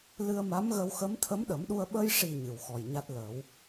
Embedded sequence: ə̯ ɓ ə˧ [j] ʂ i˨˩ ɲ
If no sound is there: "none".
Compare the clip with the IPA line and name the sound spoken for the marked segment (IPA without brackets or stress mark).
j